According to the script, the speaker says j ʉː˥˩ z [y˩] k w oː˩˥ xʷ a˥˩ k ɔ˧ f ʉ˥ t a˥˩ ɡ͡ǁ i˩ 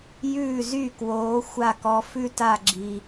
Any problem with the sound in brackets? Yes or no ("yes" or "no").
yes